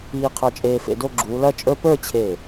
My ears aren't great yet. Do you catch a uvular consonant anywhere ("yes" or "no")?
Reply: yes